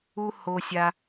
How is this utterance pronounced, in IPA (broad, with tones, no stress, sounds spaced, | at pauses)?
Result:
u˥ h o˦ sʲ a˦